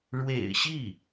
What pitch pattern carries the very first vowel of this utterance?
low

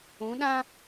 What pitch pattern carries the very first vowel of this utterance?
rising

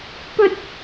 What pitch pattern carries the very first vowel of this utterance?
high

